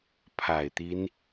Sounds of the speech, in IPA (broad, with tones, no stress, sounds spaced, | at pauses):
pʰ a˨˩ ɪ̯ t̪ i˦ n